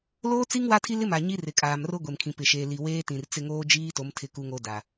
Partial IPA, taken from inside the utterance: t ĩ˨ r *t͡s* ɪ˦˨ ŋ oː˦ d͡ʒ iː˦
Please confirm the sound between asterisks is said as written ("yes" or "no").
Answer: yes